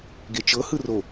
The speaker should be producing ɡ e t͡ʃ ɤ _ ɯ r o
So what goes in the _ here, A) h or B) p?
A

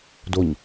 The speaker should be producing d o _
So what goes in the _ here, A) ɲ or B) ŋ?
A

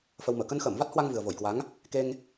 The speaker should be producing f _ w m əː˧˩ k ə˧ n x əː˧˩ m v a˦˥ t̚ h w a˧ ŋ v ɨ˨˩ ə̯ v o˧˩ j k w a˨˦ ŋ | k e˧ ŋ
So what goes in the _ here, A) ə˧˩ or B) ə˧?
B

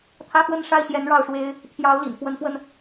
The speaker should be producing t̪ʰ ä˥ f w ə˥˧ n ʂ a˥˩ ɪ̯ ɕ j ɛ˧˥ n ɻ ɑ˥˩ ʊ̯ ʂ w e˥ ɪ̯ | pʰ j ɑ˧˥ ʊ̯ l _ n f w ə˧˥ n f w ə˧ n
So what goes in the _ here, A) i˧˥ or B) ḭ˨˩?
B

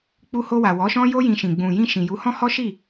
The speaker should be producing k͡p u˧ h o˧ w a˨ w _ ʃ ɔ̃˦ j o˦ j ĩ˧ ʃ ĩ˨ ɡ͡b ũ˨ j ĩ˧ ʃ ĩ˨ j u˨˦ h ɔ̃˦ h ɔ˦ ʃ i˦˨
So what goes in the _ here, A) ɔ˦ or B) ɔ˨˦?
B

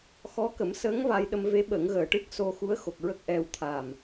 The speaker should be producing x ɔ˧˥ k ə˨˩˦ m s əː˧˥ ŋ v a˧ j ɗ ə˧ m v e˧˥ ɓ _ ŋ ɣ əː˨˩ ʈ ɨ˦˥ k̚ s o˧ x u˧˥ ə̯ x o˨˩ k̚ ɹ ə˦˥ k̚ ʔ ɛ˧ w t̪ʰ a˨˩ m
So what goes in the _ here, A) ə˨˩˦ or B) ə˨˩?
A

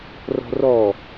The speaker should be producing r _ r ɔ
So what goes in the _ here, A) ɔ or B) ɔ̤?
B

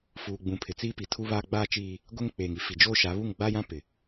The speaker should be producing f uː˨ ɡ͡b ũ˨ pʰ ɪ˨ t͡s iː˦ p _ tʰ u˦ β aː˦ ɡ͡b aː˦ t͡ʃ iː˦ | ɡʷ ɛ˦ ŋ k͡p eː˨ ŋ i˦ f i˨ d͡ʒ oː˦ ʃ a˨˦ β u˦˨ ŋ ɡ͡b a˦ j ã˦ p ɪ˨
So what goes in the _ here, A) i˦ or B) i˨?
B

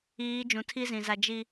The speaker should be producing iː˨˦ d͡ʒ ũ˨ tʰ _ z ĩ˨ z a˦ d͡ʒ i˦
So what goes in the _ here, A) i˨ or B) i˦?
B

